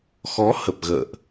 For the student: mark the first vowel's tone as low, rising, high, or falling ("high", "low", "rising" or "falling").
rising